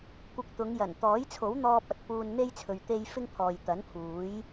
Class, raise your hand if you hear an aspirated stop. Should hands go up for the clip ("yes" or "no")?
yes